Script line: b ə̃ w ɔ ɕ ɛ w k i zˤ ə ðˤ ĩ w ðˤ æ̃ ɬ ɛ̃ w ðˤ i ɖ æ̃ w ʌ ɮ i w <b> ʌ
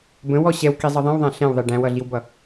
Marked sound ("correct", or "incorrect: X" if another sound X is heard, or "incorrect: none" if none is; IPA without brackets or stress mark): correct